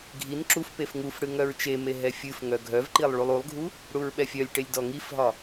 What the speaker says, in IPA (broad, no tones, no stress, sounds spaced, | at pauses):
ɡʱ i n ǁ u f p e f ŋ u f ɽ ɨ ŋ œ ɹ t͡ʃ e m e ɦ ɛ fʲ ɨ f ŋ œ ɡʱ œ v ǃ i lˠ ɭ u lˠ u lˠ ɡʱ u | ɽ u ɹ ɓ ɛ fʲ œ lʲ ʈ e lʲ d ɔ ŋ i f ɦ ɒ